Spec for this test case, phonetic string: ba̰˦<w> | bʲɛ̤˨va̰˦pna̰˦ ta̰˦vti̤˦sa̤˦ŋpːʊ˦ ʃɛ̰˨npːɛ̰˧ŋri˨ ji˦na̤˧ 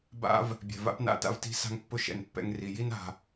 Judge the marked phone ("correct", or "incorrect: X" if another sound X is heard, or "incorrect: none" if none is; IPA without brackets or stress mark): incorrect: v